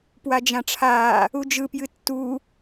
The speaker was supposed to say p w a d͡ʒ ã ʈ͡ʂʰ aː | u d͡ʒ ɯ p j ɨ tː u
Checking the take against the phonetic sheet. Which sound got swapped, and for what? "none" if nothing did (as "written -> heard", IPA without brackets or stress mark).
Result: none